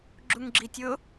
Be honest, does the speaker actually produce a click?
yes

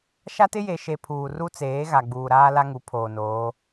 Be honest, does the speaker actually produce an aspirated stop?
yes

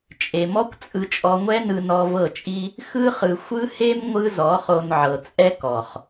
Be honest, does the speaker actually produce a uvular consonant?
yes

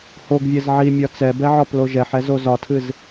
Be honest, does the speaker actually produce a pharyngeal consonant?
yes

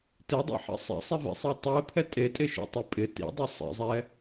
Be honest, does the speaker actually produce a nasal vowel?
no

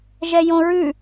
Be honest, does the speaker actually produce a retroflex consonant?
no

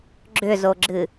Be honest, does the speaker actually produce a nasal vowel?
no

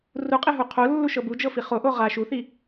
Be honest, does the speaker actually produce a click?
no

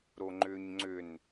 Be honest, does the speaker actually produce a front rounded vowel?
yes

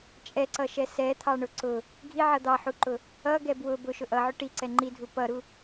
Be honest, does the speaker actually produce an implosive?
no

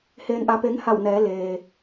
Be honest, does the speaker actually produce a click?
no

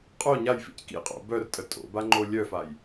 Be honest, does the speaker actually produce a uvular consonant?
yes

